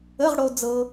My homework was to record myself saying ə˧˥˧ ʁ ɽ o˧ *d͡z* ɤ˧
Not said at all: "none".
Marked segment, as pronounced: d͡z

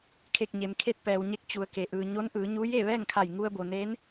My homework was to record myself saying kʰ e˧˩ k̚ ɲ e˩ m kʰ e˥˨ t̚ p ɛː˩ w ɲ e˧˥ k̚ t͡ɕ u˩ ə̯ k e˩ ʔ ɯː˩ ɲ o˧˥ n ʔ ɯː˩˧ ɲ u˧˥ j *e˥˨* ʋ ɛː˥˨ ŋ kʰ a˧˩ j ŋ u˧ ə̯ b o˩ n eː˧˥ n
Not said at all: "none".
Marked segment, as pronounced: e˥˨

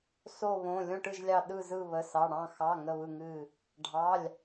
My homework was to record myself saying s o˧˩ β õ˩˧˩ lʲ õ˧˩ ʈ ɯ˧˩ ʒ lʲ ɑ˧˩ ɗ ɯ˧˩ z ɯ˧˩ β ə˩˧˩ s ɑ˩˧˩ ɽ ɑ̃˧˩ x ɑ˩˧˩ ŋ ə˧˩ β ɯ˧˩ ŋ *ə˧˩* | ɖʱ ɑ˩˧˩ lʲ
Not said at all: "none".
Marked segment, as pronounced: ɨ˧˩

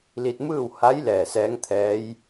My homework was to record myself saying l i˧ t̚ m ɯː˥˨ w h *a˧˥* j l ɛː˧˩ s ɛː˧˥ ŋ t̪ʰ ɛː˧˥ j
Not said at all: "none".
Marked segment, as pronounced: a˧˥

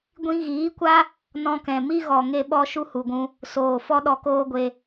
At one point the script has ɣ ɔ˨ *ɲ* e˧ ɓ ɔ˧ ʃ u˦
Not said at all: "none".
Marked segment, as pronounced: ŋ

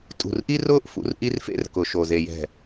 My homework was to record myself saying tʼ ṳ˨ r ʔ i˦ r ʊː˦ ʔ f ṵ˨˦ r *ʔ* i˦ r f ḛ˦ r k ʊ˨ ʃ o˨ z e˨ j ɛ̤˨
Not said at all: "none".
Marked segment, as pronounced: ʔ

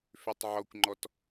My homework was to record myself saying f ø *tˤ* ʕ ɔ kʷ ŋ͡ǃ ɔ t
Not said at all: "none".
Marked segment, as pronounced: tˤ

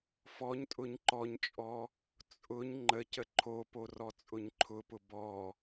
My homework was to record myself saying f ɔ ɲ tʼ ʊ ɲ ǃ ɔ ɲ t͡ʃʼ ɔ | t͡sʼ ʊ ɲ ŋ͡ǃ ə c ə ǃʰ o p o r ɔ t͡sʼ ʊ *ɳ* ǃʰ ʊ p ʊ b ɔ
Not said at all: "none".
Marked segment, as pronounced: ɲ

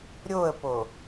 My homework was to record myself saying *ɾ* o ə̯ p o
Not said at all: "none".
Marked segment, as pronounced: ɾʲ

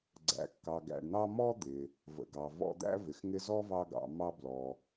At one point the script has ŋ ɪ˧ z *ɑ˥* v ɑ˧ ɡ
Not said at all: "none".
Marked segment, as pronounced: ɔ˥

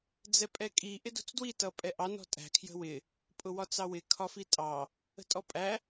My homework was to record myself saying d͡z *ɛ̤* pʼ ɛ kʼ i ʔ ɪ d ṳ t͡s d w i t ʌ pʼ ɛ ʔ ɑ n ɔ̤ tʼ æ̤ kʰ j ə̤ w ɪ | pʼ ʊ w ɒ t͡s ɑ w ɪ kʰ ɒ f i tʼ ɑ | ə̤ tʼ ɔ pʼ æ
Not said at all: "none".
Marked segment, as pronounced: ɛ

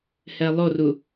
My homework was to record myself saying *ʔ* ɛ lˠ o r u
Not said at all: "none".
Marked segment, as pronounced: h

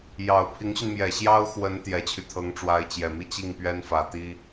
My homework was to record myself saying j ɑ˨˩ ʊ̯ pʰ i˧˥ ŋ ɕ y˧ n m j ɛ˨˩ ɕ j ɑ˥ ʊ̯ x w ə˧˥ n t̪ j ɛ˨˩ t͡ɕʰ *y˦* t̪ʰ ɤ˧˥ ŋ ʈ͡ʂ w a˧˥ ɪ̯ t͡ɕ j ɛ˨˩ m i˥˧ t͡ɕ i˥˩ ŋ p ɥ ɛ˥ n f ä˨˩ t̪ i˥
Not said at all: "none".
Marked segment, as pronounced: y˦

